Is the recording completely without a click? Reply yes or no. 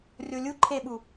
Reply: no